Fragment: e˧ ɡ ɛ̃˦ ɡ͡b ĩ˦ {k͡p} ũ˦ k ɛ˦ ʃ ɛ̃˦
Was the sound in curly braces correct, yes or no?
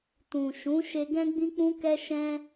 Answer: yes